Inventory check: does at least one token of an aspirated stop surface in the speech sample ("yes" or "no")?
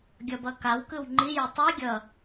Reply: no